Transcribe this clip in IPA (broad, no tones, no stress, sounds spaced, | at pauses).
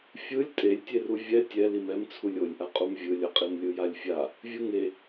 fʲ ɯ lʲ tʼ e lʲ tʲ e r u vʲ ɛ tʲ ɛ l i m ɛ m t͡sʰ u lʲ o lʲ ʔ a qʼ u m vʲ ɯ lʲ ʌ qʼ i m lʲ ɯ j a lʲ fʲ a | vʲ ɯ ŋ e